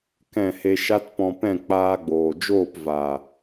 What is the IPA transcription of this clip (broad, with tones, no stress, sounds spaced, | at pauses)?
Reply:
k ɛ̃˦˨ h e˧ ʃ a˦ t p ɔ̃˧ p ɛ̃˦˨ k͡p aː˧ ɡ͡b oː˨ d͡ʒ oː˦˨ p v a˨